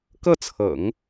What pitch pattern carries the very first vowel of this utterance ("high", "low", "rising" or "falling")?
falling